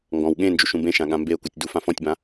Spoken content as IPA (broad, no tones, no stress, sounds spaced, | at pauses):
ŋ ɡ ɔ̃ w ɠ ẽ n d͡ʒ u ʃ ũ b ẽ ʃ ã ɠ ã m b e ʊ̯ k u tʲ d u f ã f ɔ̃ tʲ b ã